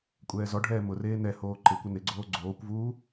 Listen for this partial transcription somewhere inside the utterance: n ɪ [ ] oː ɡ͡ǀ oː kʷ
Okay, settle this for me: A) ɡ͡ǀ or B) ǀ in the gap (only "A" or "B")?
A